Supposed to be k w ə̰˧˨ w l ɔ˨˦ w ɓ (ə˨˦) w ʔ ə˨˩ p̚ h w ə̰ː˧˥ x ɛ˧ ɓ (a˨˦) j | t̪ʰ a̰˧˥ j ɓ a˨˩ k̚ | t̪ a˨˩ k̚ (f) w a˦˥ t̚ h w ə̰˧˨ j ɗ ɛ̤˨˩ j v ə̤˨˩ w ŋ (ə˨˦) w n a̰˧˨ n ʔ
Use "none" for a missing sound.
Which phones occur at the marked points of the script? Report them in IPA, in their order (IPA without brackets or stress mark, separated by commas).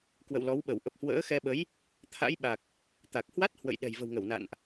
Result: ə˧˩, ə˨˦, h, ə˧˩